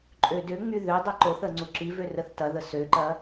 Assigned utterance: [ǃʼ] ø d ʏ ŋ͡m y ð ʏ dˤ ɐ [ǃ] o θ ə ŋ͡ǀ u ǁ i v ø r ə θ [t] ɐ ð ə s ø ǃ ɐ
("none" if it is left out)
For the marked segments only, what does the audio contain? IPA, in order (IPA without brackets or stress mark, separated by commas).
ǃʼ, ǃ, t